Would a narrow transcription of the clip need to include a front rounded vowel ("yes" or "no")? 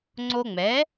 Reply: no